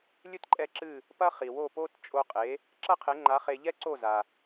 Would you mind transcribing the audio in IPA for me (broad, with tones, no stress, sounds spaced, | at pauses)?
lʲ ɨ˥ t ǃʼ ɛ˥˩ ǁ ɨ˥˩ | p ɐ˥ χ i˩ w o˥˩ p o˥ t t͡ʃʼ o˧ qʼ e˩˥ | ǁ ɐ˥ qʰ e˩˥ ŋ͡ǃ a˩˥ χ e˧ ʎ ɛ˥ ǀ o˥˩ z a˩